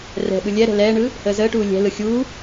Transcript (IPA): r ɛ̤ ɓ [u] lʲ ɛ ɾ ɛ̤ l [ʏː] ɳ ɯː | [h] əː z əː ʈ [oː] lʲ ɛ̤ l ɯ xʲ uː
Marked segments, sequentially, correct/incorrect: incorrect: ɯ, incorrect: ɛː, correct, incorrect: uː

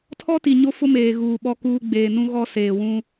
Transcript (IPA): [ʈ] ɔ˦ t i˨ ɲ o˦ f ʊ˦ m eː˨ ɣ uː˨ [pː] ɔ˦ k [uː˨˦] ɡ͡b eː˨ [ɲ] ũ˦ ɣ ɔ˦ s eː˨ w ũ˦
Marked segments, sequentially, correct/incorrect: incorrect: tʰ, incorrect: ɓ, incorrect: uː˦, incorrect: n

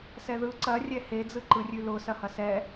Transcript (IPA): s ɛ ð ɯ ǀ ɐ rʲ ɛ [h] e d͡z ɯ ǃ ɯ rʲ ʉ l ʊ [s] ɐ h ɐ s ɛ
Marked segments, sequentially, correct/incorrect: correct, correct

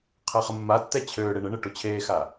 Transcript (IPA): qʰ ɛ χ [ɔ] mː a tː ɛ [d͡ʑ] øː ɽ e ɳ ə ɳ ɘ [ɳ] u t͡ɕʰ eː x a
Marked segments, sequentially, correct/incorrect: incorrect: ə, incorrect: t͡ɕʰ, incorrect: ʈ

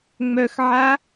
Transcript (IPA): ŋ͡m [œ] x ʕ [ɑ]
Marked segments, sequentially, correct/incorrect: correct, incorrect: a

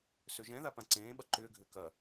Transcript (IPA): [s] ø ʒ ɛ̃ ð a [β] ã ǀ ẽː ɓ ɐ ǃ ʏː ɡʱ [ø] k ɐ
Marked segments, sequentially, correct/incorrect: correct, incorrect: p, correct

